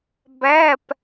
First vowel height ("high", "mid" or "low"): low